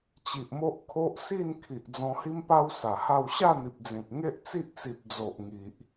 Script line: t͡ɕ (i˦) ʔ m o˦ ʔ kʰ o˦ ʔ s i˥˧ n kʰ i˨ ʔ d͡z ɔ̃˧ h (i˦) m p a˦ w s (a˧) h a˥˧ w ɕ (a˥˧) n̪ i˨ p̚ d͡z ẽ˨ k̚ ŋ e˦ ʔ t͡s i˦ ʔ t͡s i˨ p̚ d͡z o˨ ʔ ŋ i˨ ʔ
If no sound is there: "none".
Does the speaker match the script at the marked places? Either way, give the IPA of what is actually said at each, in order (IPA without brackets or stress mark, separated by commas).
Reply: i˨, i˦, a˨˩, a˥˧